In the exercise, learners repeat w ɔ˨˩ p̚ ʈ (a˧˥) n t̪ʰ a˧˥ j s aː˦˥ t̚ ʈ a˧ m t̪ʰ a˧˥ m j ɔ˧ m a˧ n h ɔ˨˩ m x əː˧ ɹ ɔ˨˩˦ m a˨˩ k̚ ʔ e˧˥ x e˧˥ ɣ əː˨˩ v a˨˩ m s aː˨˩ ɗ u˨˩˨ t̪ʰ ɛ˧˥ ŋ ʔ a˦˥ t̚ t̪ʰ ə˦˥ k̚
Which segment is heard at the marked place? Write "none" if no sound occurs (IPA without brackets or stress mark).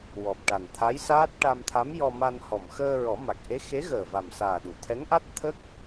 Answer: a˨˩